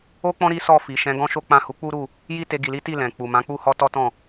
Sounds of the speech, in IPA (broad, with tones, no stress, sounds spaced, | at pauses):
o˦ k͡p ɔ̃˦ ɾ i˦ s ɔ˦˨ f i˨ ʃ ɛ̃˨˦ ɡ ɔ̃˦ ʃ o˦ k͡p ã˦˨ h u˨˦ k͡p u˦ ɾ u˦˨ | j i˦ t e˧ ɡ i˨ l i˨˦ t i˦˨ l ɛ̃˨ k͡p u˨ m ã˨˦ k͡p u˦ h ɔ˦ t ɔ˦ t ɔ̃˦˨